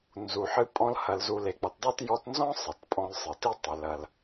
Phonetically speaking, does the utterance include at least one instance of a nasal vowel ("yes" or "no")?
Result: yes